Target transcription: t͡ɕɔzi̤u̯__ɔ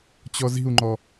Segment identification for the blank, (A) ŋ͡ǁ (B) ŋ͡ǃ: B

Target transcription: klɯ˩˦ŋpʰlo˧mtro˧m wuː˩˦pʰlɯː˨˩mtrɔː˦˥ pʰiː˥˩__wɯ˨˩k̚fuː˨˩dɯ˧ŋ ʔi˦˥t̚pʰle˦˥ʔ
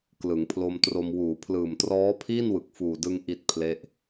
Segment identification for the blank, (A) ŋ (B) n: B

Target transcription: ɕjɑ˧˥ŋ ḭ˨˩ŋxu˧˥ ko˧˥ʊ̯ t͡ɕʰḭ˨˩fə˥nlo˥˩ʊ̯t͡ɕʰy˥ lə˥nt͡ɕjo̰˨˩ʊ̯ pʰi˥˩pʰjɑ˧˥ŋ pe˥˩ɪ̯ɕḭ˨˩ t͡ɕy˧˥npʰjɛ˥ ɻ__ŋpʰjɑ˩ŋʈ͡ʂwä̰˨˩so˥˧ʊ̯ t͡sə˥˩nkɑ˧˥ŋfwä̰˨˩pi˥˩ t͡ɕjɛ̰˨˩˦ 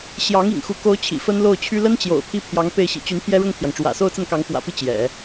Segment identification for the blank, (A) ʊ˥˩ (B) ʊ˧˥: A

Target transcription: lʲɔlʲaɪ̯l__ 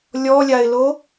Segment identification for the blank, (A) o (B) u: A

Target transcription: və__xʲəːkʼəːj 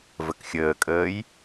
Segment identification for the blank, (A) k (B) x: A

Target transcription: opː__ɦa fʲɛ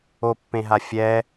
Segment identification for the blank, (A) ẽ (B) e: A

